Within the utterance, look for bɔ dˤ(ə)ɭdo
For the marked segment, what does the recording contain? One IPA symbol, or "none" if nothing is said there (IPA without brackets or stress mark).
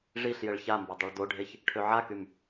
œ